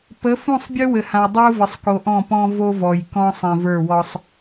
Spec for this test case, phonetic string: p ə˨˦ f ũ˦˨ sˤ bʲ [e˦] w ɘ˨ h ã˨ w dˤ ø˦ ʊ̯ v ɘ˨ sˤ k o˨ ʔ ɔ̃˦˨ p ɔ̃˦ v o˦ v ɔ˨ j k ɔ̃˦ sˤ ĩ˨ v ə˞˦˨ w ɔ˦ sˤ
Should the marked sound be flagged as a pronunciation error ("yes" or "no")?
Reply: yes